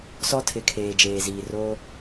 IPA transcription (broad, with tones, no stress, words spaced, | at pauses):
sɔ˦tʰɪ˨kʰeː˨ d͡ʒeː˨ziː˨ ro˦